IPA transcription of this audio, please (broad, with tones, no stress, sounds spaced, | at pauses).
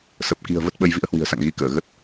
s ə˨˩ p̚ k i̤˨˩ ə̯ v ə˦˥ t̚ ɓ ə˧ j v ḭ˧˥ ə̯ h w i̤˨˩ ə̯ s a̰˧˨ ŋ ɣ i˧ k əː˧˩ ɣ ə˦˥ t̚